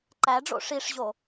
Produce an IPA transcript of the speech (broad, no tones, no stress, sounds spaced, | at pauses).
ǃ æ ɖ͡ʐ o̰ ʂ i ʂ ʑ o